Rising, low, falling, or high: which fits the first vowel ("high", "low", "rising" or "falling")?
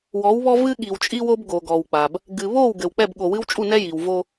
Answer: rising